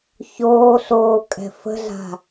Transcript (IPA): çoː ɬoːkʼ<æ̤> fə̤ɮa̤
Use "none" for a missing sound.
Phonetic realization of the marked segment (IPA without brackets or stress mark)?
ɛ̤